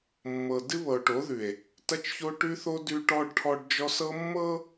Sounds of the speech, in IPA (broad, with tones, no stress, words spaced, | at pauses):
mːɤ˨ dɨ˦βɤ˨o̯ʈo˨˦ðʉ˨e̯ | tɐ˦t͡ʃço˦ʈʉ˦θo˦ dʉ˦ʈɔ˦ɖʈʰɔ˦ɖd͡ʒɔ˦s ɤ˦mːɤ˦